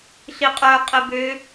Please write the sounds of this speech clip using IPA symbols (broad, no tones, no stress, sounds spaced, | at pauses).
ɬ i qʼ œ qʼ ɪ b ø